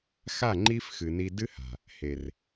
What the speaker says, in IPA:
x a˦˨ ŋ͡ǃ i˦ f x ɨ˨ n i˧ d ɨ˦ h a̤˨ | h e˨ r

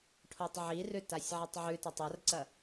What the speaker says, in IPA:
ʈʰ o tˤ ʕ i r ʉ t a sʲ ʕ ɐ tˤ ʕ ʉ t ɐ tˤ ɐ r ǀ ɐ

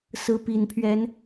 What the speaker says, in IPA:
s ɹ̩˨˦ p i˨˩ n pʰ ɥ ɛ˨˦ n

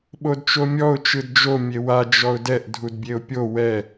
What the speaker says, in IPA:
ɓ o d t͡ʃ o mʲ ɔ ʊ̯ t͡ʃ ɯ d d͡ʒ o mʲ e w a d͡ʒ ɔ ʊ̯ d ɛ ʔ dʱ u d bʲ e ʊ̯ pʲ o w ɛ

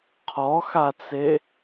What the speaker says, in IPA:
qʰ ɔ x a t͡s e

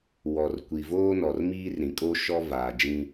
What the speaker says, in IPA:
w ɔ˨ r kʷ i˨ v oː˦ n ɔ˨ r m iː˦ r ɾ ĩ˨ kʼ o˦ ʃ ɔ˦ v aː˨ d͡ʒ ĩ˦

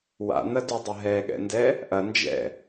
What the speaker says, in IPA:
w a̰ n̪ ɐ d y dˤ ə ɦ ɛ ɠ ɛ̰ n d ɛ | ʔ ɐ n d͡ʒ ɛ̰

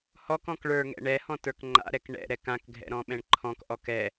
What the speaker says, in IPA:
h ɔ k ɔ̃ k ɭ ə˞ ŋ ɛ̰ ɳ ɛ h ɔ̃ t ə˞ k ŋ͡ǃ a̰ ɾ ɛ k ɳ ɛ̰ ɾ ɛ k ã k ɡʱ ɛ̰ ɾ ɔ̃ ɓ ɛ̃ ɳ ǃʰ ɔ̃ k ʔ ɔ k ɛ

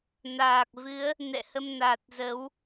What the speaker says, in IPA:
n aː˨˩ k̚ v ɨ˨˦ ə̯ | n ɛ̰˧˨ h ə˧ m n aː˨˩ t̚ z ə˨˦ w

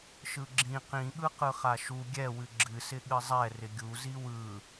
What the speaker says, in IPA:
ʃ ɯ ɡ͡ǁ ĩ q ĩ ɠ ɯ q ɯ χ a ʃ u ɡʲ ɛ w ɨ ɡ͡ǁ ɨ s ɪ ɠ ɨ zˤ ɛ r ɪ ɡʲ u z i w ɯ

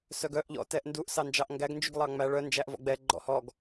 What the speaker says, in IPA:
s œ ɡ œ ʔ ʎ ɔ̰ t ɛ ʔ n d u ʔ s ɑ n d͡ʒ ɑ ʔ ŋ ɡ æ ɡ n d͡ʒ y ɡ lˠ ɑ ŋ͡m æ ɭ œ n d͡ʒ æ ʔ v ɔ̰ ɡ͡b ɛ ɡ͡ǃ ɔ̰ h ɔ ɡ

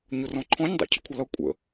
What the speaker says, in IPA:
ɲ ʊ r ɔ̃ ǃʰ ɔ̃ ɲ dˤ ɑ̰ cʰ ə̰ kʷʰ ʌ l ʌ kʷʼ ə̰

